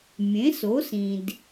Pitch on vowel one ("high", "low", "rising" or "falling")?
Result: rising